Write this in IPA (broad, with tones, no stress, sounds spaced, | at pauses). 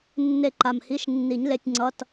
nː e˥˧ ǃ a˧˩ m h i˧˥˧ ʃ nː i˨˩˦ ɲ l e˧˥˧ tʲ ŋ͡ǀ ʌ˧˥˧ t